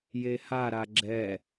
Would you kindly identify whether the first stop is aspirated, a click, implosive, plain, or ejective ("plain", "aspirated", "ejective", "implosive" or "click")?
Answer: click